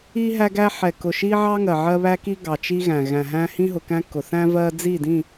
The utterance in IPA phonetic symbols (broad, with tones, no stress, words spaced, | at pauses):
i˦ ɦæ˦ɡæ˦ ħɛ˨kʊ˨ ʃi˦ʕɑ˦ ŋɜ˨ʕɜ˦βæ˦ki˦ ɡɑ˨t͡ʃi˦ ɣæ̃˨ɣæ̃˨ɦæ̃˦ hĩ˦ɦʊ˨kæ̃˦ kʊ˨ θæ̃˦vɜ˦ d͡zi˦˨dĩ˦˨